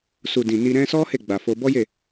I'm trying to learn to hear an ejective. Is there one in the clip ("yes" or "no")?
no